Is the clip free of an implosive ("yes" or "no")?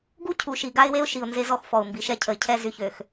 yes